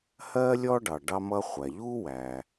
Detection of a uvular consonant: present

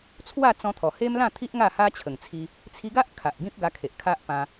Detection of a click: absent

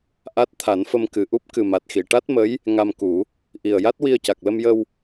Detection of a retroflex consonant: present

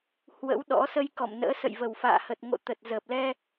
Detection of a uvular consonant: absent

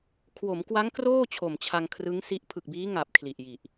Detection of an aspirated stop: present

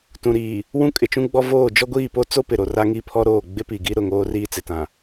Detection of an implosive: absent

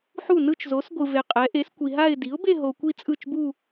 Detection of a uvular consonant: present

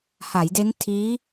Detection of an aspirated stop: present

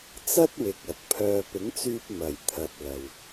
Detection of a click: absent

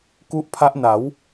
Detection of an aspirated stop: present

